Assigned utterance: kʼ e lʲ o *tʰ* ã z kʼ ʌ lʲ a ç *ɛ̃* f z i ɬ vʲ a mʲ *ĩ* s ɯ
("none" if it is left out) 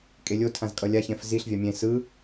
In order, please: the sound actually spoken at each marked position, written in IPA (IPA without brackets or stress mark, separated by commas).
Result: tʰ, ɛ̃, ẽ